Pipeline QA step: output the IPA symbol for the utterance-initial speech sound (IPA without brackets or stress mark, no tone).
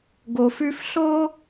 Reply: ɡ